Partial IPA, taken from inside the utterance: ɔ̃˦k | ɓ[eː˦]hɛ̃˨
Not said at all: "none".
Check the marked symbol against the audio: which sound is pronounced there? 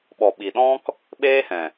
eː˦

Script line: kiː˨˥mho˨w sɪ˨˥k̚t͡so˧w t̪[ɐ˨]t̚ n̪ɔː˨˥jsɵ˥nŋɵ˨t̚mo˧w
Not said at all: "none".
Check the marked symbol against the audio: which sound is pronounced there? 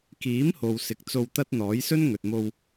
ɐ˥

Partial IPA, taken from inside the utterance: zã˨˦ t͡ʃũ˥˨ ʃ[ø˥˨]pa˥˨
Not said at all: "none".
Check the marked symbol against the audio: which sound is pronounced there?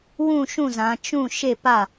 e˥˨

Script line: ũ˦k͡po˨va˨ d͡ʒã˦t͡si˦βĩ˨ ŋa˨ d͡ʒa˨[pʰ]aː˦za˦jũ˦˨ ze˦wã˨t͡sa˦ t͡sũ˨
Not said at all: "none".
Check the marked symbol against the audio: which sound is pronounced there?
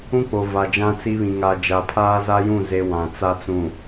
pʰ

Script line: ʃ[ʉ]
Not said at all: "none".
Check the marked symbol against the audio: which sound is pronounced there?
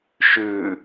ʉ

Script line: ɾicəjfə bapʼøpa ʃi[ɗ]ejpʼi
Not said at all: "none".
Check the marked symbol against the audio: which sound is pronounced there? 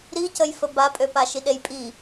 ɗ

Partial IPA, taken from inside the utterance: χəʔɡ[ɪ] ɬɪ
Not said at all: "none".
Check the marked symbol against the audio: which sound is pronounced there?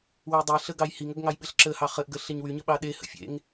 ə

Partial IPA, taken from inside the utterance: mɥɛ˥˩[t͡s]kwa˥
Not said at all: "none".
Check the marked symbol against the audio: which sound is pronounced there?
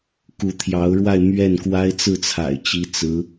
n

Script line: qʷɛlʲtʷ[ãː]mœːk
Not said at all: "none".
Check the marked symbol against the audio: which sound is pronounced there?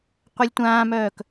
ãː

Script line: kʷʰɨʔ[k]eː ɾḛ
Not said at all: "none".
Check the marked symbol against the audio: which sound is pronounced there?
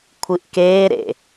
k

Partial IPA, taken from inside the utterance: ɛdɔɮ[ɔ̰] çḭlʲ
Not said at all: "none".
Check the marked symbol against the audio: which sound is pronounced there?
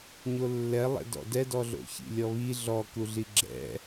o̰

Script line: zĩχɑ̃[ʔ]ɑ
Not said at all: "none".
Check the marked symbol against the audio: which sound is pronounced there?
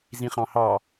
h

